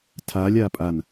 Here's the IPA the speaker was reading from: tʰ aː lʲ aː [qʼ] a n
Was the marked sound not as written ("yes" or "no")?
yes